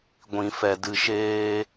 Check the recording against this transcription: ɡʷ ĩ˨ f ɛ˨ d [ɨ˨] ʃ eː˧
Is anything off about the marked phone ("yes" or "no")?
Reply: no